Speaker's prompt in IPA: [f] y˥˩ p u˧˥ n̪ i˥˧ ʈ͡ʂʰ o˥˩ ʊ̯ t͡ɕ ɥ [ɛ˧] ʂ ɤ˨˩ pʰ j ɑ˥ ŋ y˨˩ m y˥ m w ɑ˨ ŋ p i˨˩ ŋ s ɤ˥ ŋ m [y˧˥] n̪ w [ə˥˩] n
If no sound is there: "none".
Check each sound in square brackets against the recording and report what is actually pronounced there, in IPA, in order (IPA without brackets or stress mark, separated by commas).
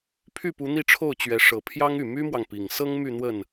pʰ, ɛ˧˥, y˥˧, ə˥˩